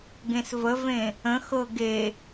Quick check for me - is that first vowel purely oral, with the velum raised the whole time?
no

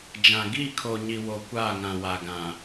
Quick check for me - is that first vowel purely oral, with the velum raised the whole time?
no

